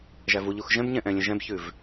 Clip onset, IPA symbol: ʒ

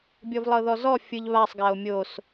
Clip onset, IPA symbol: bʲ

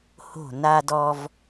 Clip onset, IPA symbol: h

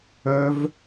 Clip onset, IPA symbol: œ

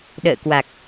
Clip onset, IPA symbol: ɗ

